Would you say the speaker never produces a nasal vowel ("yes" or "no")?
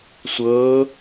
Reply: yes